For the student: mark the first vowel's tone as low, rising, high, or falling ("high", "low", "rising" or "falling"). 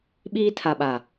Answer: high